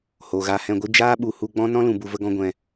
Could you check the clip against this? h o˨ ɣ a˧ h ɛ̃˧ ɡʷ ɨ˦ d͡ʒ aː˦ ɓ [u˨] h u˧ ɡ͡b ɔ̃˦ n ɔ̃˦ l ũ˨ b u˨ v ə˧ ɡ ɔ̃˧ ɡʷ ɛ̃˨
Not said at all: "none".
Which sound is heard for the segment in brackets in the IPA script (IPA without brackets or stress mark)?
u˨